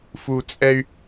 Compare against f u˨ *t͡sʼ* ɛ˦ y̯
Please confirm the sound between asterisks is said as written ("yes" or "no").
yes